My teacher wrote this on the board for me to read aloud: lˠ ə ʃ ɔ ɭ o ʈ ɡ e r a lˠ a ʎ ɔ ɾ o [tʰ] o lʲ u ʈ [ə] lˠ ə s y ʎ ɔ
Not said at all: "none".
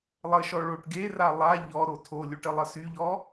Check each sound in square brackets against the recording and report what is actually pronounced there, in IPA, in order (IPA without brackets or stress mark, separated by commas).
tʰ, ə